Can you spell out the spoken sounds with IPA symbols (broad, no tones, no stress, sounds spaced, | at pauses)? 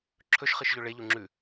ǁʰ ɵ ʃ χ ɨ ʃ ʎ ɵ ɭ e ʎ u ŋ͡ǁ ʉ